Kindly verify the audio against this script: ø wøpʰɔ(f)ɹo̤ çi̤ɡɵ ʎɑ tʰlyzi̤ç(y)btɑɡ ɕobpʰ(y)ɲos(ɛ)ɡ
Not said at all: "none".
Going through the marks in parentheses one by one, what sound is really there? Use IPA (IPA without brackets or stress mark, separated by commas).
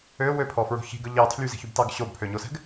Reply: f, y, ø, ɛ̤